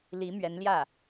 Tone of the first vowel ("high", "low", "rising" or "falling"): rising